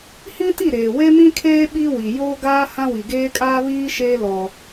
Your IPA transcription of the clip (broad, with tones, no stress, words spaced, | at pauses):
hĩ˦ti˦˨ ɾeː˨we˦mĩ˦kʰeː˦ ɓi˦wi˨ joː˦ɡaː˦ hã˦wi˨ɡeː˦kʼaː˦ βiː˦ʃeː˦ lɔ˦